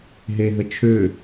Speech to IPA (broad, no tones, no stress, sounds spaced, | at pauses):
ɦ e ɦ ə t͡ʃʰ ø